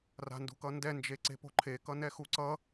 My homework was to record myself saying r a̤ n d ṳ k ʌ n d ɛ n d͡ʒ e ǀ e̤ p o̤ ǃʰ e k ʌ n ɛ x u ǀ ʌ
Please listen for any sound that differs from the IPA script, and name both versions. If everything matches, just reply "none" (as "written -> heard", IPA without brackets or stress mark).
none